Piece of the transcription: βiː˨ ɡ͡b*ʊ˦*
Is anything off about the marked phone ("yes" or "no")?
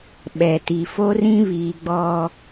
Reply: yes